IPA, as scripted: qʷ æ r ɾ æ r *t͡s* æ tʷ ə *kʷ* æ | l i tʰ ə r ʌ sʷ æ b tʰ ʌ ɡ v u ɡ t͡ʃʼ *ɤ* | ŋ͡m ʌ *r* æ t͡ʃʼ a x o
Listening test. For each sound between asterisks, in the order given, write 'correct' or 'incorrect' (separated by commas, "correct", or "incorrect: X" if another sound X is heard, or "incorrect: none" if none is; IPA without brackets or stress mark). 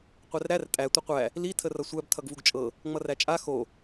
incorrect: tʼ, incorrect: qʷ, correct, correct